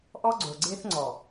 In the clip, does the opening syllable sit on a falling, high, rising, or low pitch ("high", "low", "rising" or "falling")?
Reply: high